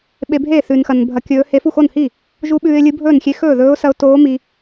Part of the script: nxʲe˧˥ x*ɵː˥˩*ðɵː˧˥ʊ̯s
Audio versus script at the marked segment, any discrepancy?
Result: no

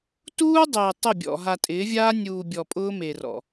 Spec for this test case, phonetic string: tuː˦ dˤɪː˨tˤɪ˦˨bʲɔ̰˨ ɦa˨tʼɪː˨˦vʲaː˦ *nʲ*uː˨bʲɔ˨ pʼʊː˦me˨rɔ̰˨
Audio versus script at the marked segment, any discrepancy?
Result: no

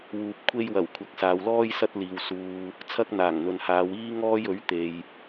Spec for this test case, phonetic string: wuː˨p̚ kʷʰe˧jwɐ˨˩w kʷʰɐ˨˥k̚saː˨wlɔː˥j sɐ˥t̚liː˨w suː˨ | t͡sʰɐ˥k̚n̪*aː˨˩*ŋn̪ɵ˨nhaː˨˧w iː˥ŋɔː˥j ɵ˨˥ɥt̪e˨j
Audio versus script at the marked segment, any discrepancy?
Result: no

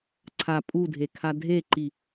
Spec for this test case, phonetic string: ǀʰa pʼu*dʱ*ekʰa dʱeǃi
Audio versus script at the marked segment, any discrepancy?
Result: no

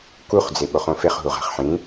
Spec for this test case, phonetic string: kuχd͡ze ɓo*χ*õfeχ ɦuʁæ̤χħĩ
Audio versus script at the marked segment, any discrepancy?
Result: no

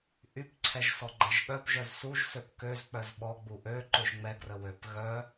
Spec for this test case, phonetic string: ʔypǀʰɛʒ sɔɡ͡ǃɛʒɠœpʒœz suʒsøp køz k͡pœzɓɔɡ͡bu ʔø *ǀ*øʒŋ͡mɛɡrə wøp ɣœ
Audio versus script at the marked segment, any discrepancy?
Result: yes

